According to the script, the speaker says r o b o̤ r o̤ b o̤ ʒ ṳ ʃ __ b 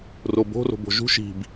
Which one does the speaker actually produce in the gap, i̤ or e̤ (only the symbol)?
i̤